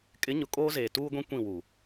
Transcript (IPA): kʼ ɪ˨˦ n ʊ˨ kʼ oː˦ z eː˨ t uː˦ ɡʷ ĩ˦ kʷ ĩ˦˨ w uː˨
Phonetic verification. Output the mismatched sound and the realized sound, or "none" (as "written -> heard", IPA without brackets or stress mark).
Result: n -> ɲ